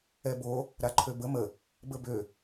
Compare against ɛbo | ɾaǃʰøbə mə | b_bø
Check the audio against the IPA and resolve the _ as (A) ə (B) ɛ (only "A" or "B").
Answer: A